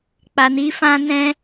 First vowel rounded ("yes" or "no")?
no